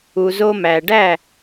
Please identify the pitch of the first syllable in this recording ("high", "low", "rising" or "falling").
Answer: low